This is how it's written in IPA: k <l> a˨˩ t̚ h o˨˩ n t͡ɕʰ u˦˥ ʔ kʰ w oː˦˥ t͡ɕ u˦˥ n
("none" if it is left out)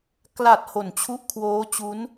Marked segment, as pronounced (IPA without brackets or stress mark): l